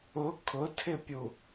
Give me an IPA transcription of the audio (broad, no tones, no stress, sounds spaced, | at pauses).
ʊ kʰ ʊ tʰ ɪ pʲ u